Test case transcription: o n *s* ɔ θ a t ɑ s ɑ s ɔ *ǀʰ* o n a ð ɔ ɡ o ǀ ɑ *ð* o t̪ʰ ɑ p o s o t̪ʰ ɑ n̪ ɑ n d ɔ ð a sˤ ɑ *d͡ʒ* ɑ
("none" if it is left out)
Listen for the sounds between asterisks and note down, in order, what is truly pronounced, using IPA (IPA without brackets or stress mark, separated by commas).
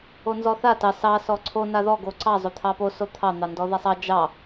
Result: z, ǀʰ, zˤ, d͡ʒ